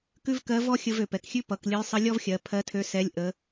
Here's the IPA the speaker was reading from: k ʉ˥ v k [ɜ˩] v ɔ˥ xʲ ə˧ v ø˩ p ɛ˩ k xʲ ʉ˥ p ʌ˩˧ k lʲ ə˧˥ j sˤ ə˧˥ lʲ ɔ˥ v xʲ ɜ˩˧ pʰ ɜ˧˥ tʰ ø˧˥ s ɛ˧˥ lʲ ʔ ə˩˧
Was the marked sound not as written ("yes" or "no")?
yes